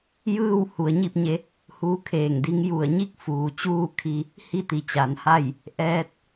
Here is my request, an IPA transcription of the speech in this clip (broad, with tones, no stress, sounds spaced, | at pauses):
j ɯː˥˨ w h u˩˧ ə̯ ɲ i˥˨ p̚ ɲ e˧ | h uː˧˥ kʰ eː˧˩ ŋ d i˧˥ ŋ j u˧˩ ə̯ ɲ i˥˨ k̚ f uː˩ t͡ɕ uː˥˨ kʰ i˧ | h i˥˨ t̪ i˩˧ t͡ɕ a˩˧ n h a˥˨ j | ʔ ɛː˧ t̚